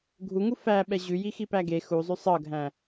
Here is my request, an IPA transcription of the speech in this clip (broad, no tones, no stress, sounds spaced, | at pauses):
ɡʱ u ŋ u f æ ɓ ɛ ʑ ʉ j i x i p æ ɡ e x u zˤ ʉ sˤ ɤ ɡʱ æ̃